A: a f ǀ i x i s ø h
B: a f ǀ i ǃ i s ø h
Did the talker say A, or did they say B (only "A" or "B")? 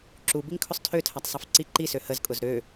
B